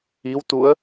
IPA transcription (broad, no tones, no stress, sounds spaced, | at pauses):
i w t u ə̯